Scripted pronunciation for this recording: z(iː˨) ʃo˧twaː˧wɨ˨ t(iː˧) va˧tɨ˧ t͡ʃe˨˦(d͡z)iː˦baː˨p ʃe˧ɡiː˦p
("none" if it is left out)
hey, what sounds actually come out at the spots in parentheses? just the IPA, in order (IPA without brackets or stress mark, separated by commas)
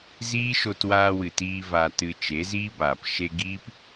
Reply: iː˦, iː˧, z